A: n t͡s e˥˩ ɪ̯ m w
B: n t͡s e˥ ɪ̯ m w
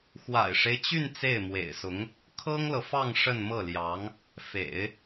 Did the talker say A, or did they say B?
A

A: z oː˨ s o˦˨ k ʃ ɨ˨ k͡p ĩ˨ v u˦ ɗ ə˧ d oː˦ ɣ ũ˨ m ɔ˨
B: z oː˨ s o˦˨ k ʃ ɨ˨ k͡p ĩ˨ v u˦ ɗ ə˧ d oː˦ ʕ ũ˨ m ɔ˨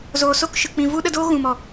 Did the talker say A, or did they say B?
A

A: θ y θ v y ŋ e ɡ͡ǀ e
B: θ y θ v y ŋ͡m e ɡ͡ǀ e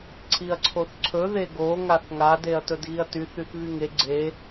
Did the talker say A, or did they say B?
A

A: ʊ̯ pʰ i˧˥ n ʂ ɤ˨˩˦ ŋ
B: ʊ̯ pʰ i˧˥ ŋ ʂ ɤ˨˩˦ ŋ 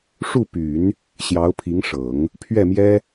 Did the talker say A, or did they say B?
B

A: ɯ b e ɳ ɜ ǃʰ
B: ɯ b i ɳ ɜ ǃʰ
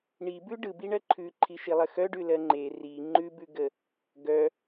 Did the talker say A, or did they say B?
B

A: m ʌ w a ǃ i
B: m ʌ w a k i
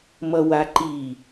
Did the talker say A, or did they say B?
A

